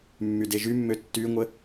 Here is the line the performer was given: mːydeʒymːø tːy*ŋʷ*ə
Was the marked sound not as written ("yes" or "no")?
no